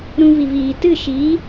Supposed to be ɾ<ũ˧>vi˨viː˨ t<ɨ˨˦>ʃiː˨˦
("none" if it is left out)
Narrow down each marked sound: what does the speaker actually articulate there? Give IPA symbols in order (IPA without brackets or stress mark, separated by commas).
ũ˧, ɨ˦˨